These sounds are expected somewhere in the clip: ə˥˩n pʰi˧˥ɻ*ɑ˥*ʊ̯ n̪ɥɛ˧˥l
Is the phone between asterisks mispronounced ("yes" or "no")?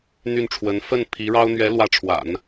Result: no